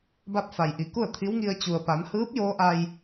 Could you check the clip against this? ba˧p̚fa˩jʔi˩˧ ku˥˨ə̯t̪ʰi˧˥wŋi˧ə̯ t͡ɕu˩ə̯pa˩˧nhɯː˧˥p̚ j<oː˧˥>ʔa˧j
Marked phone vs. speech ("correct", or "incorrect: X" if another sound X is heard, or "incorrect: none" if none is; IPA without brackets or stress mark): correct